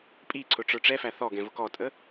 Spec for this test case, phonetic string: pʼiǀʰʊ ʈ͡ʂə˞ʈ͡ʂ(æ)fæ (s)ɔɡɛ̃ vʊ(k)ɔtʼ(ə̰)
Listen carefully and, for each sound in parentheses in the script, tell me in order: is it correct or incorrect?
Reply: incorrect, incorrect, correct, incorrect

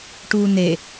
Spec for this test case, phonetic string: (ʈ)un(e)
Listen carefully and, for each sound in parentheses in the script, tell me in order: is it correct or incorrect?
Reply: correct, correct

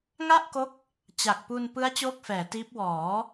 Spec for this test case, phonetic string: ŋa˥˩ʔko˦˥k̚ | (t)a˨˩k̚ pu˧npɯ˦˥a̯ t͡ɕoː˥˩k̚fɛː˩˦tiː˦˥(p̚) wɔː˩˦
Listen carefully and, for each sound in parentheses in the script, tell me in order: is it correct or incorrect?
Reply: incorrect, correct

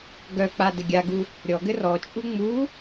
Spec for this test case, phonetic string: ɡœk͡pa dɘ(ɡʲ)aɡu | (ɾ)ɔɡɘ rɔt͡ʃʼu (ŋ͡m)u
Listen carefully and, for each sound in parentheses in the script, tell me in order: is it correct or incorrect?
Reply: correct, incorrect, correct

